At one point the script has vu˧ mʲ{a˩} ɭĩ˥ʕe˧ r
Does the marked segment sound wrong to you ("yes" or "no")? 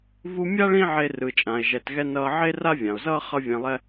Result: yes